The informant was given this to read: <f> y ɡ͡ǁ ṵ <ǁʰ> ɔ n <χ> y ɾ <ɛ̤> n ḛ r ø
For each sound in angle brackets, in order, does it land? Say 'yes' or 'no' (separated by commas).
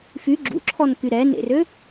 yes, yes, no, no